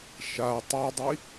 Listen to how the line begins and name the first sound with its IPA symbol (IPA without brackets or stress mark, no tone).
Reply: ʃ